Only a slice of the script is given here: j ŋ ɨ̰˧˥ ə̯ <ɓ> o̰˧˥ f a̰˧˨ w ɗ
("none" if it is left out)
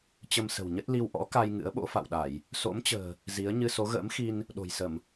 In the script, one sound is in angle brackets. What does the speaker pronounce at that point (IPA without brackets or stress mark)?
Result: ɓ